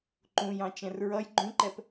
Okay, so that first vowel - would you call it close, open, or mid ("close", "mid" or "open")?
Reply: close